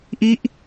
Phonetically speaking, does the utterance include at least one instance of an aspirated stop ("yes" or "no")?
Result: no